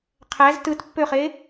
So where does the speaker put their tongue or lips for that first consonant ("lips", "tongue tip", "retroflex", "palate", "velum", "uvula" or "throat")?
uvula